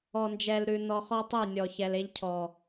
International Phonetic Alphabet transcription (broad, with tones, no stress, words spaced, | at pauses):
ɔ˨nd͡ʒɛ˨lɾʉ˨ nɔ˨χɔ˦tˤe˦˨ nʲɔ˨ çɛ˨le˦ʎcʰɔ˨